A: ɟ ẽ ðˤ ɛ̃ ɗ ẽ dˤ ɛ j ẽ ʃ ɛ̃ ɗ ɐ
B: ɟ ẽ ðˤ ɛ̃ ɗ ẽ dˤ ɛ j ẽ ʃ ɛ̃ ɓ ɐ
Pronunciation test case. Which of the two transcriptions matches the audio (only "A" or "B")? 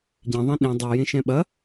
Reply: B